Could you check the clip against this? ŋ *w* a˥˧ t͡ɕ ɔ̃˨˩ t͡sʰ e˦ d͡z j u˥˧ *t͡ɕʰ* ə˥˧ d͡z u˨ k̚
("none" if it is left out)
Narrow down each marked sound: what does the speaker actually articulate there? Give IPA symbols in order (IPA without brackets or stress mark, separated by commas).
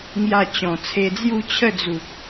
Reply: j, t͡ɕʰ